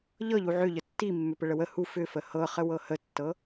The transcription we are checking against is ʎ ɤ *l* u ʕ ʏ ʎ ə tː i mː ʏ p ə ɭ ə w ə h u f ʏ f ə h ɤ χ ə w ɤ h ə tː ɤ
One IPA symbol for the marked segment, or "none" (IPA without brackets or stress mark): ʎ